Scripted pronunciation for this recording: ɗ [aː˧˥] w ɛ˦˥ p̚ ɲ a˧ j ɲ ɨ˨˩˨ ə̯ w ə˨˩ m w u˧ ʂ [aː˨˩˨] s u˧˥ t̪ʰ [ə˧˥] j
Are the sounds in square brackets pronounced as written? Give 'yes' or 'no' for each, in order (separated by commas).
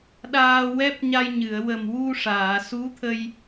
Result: no, yes, no